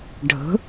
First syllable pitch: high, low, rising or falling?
rising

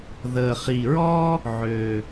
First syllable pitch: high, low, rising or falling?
low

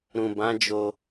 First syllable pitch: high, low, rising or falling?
low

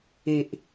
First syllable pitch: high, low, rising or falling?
low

